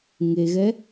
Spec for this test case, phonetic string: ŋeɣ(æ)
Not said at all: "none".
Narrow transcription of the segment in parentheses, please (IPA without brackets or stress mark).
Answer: ɛ